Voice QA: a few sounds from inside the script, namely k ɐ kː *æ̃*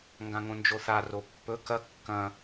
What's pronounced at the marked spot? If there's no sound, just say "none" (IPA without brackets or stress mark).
ɐ̃